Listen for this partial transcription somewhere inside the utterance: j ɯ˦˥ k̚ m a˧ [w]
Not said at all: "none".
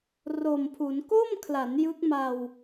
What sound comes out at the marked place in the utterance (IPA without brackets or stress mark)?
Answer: w